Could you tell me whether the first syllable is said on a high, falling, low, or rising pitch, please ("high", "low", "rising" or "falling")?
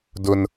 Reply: high